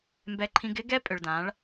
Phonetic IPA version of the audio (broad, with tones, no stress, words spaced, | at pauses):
mbɛ˧ ǃʰĩ˧ɡɪ˦ɡɛ˦pʼʏ˨ɭ dã˨˦ɭ